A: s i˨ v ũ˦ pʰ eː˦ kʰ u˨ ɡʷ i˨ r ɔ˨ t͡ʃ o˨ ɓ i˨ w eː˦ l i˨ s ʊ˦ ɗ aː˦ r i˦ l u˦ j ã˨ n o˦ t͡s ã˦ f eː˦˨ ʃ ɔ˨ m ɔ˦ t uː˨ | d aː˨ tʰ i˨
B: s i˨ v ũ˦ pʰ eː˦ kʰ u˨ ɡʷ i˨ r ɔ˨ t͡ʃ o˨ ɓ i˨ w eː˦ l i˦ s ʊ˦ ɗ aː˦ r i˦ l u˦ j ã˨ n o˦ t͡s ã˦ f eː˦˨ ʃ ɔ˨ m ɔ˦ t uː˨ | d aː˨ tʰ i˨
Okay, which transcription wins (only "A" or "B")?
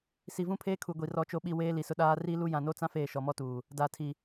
A